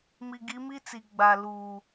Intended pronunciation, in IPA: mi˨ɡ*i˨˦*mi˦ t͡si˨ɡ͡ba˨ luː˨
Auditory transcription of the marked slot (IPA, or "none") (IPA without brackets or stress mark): i˨˦